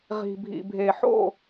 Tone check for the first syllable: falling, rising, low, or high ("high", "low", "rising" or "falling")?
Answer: low